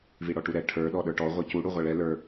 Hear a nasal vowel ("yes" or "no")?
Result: no